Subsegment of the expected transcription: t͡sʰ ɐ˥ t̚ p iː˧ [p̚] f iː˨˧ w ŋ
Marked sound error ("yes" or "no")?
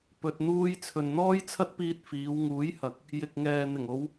yes